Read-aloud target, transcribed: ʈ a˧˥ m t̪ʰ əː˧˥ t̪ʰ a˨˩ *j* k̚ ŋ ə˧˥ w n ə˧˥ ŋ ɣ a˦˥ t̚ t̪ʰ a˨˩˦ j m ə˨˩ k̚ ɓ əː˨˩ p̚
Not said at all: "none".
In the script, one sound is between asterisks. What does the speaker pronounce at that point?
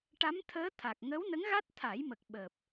none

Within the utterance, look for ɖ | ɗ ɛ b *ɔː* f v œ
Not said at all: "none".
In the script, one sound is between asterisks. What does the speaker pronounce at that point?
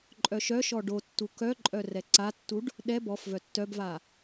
ɔ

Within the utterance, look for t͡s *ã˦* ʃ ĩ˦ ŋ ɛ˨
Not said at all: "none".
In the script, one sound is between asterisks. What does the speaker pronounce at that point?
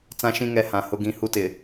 ã˦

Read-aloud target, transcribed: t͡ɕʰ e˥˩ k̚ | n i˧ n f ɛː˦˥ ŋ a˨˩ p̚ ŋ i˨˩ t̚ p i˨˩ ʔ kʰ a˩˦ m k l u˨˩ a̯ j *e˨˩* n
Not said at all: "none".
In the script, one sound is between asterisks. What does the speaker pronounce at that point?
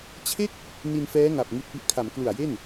e˥˩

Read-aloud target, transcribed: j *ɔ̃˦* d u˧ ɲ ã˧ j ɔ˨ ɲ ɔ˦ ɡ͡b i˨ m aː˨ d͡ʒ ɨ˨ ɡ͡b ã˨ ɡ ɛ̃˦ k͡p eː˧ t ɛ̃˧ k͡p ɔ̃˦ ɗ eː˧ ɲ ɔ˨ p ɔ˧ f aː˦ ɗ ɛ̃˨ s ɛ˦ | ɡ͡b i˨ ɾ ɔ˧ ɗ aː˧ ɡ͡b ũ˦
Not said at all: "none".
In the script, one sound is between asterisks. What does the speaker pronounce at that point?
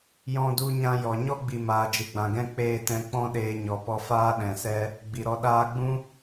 ɔ̃˧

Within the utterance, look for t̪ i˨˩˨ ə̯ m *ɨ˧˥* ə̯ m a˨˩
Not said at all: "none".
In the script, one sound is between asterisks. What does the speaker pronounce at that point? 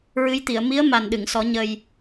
i˧˥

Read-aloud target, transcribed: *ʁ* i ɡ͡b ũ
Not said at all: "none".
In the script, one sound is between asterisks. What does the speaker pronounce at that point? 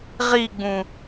ʁ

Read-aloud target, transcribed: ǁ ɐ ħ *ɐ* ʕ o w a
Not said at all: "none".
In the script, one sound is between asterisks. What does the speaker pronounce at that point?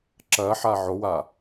a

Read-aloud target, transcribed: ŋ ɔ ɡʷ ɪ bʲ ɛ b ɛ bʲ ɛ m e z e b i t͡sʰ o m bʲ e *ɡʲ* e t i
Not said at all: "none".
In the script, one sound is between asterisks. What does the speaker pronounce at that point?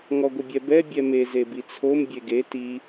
ɡ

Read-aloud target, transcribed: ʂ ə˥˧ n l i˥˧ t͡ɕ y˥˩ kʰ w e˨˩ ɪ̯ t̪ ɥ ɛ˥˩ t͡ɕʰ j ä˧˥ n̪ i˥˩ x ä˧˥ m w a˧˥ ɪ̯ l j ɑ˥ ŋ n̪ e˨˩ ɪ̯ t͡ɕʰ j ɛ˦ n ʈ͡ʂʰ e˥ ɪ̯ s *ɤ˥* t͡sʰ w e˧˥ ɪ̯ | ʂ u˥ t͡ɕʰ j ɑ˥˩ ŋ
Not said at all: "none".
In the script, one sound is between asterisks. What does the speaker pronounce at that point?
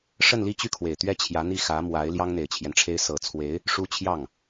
ɤ˨˩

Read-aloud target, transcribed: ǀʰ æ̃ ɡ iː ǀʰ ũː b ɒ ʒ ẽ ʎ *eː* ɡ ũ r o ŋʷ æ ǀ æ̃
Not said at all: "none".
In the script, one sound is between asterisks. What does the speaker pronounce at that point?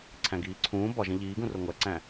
iː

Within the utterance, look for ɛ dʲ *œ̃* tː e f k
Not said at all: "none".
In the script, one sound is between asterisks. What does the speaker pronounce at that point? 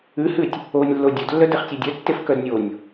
œ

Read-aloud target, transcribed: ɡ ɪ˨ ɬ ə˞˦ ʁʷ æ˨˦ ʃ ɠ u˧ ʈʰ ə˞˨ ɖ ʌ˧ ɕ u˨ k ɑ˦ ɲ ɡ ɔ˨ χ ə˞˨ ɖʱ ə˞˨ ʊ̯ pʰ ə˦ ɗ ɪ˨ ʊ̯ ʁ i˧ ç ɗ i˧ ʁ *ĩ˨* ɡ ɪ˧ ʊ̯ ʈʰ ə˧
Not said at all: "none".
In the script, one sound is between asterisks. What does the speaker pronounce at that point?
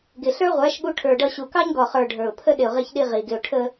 i˨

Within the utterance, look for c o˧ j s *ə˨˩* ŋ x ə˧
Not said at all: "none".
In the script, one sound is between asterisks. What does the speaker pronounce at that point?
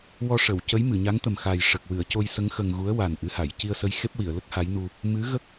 ə˧˥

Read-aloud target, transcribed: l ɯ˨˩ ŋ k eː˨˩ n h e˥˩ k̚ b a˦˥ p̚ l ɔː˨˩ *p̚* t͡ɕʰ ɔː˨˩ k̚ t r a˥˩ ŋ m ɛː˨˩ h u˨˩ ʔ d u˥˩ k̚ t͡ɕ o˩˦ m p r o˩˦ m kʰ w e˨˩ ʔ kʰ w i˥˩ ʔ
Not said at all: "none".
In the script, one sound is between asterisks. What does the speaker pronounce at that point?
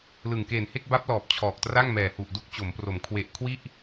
p̚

